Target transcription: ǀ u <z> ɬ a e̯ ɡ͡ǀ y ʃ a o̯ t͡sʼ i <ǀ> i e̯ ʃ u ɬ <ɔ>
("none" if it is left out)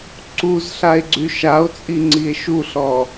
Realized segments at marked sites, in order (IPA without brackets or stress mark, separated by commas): z, ŋ͡ǀ, ɔ